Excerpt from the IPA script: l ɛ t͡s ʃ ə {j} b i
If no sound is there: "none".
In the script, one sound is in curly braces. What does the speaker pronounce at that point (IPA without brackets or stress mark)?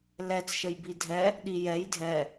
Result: j